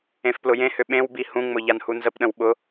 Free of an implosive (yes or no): no